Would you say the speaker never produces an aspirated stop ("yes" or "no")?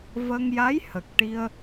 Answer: yes